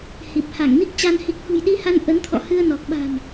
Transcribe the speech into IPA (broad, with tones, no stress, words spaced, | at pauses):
hi˨˩p̚ha˧˩ŋni˦˥k̚ t͡ɕa˧n hi˨˩k̚hṳ˨˩jɗi˧ha˧n ʔə˨˦nt̪ʰɔ̰˧˨ hɨ˧ə̯nɔ˨˩k̚ɓa̤˨˩m